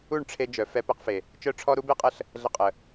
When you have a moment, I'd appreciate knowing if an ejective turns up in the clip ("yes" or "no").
yes